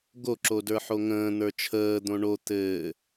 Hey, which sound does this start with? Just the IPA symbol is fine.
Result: ɡ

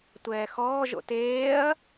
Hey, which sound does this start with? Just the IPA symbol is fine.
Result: tʷ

